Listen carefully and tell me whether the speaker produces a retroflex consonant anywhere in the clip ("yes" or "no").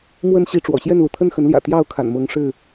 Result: yes